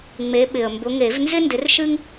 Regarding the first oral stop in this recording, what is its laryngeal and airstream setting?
implosive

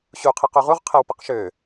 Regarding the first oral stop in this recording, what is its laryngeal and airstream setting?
aspirated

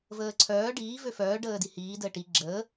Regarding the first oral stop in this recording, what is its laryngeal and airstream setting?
click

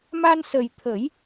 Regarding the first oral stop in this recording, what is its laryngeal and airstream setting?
aspirated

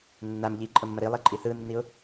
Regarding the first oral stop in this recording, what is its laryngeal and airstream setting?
click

